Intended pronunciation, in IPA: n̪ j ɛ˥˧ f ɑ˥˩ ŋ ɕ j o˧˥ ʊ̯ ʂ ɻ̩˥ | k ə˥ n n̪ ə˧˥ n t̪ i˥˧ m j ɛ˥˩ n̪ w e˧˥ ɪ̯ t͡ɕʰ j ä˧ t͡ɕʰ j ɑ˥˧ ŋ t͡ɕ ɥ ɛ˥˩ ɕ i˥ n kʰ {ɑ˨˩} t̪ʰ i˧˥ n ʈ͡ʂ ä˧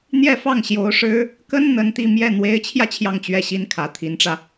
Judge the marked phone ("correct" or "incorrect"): incorrect